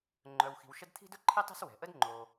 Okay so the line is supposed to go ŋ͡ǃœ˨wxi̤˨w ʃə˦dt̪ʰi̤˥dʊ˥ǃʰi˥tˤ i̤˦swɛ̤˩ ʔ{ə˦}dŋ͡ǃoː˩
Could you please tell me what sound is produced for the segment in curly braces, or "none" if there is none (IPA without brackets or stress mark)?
ə˦